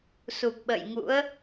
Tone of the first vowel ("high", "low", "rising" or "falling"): low